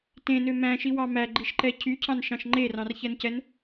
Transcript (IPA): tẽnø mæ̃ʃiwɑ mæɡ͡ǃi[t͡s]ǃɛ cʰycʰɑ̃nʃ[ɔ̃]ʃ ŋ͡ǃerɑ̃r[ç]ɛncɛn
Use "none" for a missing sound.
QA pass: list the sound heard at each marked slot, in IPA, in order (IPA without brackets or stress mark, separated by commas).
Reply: ʃ, ɑ̃, ç